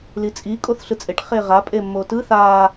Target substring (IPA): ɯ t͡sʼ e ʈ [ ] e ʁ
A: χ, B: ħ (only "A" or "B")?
A